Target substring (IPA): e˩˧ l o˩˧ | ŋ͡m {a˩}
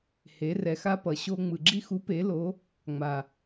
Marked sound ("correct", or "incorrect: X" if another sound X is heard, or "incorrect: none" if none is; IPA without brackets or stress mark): correct